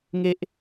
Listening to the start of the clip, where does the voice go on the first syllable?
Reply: high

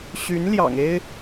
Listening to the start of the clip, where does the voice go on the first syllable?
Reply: rising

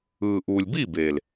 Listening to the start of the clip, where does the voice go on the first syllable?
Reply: low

